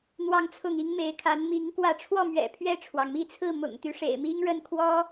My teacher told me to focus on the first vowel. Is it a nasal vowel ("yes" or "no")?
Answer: no